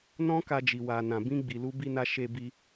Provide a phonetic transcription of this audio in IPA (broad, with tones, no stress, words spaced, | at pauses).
nɔ̃˦ka˧d͡ʒi˨ wa˨ nã˨ bĩ˧ɡ͡bi˨lu˧ bi˧na˧ ʃe˧bi˧